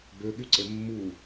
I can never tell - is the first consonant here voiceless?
no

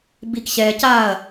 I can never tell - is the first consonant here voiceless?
no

